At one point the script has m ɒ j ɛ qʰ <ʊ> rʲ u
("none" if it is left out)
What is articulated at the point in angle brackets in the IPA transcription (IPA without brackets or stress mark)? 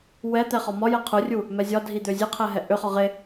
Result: ʊ